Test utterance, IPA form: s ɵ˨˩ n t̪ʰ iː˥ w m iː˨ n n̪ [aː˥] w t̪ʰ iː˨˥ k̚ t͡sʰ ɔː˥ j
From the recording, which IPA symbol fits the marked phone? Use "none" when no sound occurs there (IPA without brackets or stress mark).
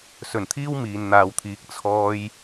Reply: aː˨